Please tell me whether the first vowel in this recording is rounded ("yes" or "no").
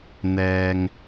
no